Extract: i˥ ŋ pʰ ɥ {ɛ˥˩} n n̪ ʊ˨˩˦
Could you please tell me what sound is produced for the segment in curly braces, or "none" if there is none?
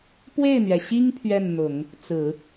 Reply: ɛ˥˩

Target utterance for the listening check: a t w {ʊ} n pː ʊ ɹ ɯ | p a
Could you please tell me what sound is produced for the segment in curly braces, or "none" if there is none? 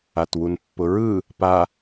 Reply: u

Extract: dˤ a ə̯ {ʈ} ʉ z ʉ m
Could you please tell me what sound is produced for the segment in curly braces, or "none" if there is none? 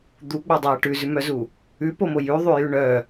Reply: ʈ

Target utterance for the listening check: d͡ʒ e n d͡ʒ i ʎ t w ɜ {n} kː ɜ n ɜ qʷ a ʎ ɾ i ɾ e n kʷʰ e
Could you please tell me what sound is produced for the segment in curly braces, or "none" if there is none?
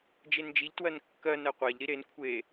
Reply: n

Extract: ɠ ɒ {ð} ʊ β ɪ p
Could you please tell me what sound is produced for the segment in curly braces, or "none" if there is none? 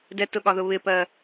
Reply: ð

